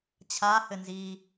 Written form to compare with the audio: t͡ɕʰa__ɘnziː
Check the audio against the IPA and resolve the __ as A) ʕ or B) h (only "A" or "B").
B